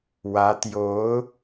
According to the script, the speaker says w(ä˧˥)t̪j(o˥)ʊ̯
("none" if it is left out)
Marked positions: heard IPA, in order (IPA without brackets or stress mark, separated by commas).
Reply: ä˧˥, o˧˥